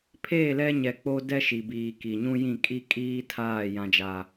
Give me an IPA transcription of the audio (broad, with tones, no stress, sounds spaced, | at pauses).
pʰ eː˦˨ l ɛ˦ ɲ ɛ˨ k͡p o˦ d ɛ˦ ʃ i˨ b iː˨ k i˨ ɲ ũ˦ j ĩ˦˨ kʼ i˦ kʼ iː˦ tʰ aː˦˨ j ã˦ d͡ʒ a˦